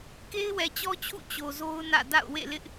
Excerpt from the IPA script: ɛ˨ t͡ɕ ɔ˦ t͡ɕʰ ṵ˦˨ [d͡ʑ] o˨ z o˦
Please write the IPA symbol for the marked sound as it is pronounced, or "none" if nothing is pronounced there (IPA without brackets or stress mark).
t͡ɕ